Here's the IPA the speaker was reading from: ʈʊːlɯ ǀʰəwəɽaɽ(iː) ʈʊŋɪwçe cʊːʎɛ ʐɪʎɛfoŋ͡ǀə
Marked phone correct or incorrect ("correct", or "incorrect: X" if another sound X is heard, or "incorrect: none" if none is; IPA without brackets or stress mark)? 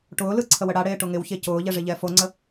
incorrect: eː